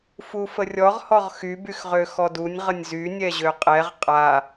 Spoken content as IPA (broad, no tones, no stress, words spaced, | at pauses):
fufərʲɔʁ hɔʁxy byxʁøxɔdunʲ ʁənʲzy nʲɛʑøqʼɛʁ qʼa